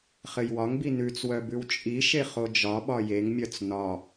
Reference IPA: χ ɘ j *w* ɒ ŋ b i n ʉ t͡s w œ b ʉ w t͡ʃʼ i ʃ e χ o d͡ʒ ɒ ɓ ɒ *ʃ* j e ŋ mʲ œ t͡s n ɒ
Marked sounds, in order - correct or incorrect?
correct, incorrect

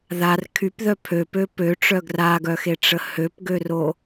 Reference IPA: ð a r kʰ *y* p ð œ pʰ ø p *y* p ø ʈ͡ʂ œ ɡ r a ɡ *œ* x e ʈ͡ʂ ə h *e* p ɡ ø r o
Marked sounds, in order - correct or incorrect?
correct, incorrect, correct, incorrect

